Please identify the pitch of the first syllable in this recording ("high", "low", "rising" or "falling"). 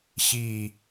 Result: falling